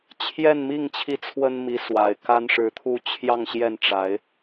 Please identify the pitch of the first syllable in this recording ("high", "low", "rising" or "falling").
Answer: falling